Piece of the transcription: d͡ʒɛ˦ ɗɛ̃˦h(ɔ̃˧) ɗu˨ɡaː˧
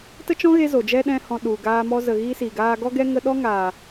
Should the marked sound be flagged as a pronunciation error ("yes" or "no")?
no